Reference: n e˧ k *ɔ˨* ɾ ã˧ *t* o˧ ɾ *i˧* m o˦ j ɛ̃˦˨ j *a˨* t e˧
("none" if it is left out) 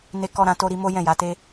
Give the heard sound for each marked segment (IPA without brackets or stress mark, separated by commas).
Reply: ɔ˧, t, i˧, a˨˦